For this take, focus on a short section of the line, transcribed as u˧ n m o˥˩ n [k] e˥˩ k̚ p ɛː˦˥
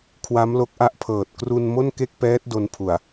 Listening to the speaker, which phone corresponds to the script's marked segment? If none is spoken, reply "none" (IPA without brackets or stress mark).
k